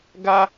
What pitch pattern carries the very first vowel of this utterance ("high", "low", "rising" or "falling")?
low